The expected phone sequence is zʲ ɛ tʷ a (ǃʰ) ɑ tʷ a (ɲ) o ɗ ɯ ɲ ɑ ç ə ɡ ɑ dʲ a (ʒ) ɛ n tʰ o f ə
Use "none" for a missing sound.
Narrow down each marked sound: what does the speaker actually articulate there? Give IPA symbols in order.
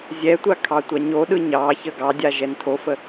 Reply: kʰ, ɲ, ʒ

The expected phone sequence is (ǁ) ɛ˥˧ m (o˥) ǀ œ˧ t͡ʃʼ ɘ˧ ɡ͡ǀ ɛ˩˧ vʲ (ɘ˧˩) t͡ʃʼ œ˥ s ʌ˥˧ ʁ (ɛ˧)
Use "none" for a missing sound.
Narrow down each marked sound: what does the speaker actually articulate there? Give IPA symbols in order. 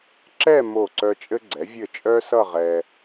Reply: ǁ, o˧˩, ɘ˧˩, ɛ˧

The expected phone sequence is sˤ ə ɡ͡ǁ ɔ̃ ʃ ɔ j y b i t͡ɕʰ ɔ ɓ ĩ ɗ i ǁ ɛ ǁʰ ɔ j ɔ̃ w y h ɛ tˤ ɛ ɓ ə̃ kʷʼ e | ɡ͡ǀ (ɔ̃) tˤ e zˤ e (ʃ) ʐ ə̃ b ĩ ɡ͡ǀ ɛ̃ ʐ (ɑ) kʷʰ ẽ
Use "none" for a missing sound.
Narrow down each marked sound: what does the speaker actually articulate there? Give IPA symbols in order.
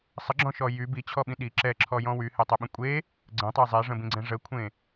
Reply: ə̃, none, ə

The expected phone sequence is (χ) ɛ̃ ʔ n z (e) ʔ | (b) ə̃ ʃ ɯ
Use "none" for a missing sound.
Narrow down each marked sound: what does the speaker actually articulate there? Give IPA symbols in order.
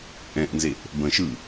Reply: ʔ, e, b

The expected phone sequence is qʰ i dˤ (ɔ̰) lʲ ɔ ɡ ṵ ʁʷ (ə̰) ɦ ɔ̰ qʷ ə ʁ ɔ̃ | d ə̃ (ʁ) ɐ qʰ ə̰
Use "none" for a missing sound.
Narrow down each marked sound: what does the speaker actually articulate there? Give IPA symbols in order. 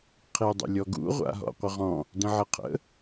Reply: ə̰, a̰, ʕ

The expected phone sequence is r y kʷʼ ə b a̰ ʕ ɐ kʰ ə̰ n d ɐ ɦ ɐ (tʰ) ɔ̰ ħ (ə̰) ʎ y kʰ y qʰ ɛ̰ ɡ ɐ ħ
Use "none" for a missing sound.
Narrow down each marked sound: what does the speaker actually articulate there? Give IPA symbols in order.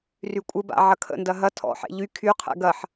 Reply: tʰ, ɛ̰

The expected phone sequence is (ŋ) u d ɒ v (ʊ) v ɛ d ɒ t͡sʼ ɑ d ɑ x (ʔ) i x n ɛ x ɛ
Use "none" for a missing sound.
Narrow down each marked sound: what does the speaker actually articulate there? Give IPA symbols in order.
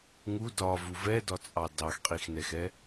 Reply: ŋ, u, qʼ

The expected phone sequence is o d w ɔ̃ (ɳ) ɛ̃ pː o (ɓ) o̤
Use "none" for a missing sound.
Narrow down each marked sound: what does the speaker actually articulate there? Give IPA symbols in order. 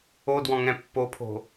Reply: ŋ, pʰ

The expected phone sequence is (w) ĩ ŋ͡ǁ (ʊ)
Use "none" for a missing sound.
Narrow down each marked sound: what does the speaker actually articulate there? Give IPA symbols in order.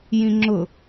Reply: j, ʊ

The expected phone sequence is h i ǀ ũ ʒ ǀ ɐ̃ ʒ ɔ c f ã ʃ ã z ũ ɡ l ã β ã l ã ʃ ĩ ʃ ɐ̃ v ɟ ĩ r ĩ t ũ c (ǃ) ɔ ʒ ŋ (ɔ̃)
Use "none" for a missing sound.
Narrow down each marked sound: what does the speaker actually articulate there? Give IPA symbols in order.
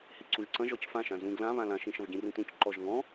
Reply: ǃ, ɔ̃

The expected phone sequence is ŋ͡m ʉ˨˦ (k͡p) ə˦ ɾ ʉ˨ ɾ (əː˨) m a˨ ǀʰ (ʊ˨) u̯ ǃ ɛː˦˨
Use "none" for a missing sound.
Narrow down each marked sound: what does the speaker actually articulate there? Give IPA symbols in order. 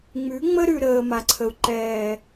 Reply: ŋ͡m, əː˨, ə˨

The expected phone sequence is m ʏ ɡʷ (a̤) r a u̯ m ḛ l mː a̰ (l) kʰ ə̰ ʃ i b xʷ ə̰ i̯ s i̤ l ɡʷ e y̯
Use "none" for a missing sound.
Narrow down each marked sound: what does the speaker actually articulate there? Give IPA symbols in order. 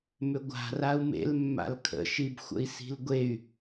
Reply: a̤, l

